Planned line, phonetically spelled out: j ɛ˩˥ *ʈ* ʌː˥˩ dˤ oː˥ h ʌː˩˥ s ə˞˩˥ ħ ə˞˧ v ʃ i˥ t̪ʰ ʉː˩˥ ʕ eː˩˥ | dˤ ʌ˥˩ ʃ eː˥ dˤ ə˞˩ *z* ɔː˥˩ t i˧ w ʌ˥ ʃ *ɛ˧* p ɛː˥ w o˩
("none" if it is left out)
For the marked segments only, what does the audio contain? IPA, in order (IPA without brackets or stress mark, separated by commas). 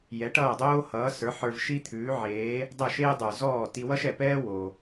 ʈ, z, ɛ˩